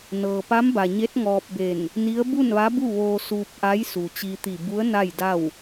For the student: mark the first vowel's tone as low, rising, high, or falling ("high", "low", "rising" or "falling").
low